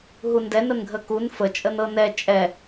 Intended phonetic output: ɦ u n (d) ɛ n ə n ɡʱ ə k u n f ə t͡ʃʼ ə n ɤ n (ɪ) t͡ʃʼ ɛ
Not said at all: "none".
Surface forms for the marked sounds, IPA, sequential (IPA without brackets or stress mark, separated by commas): d, ɛ